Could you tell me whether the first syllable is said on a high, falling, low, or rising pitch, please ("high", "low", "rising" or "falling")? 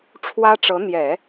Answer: high